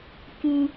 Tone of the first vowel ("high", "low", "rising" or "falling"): high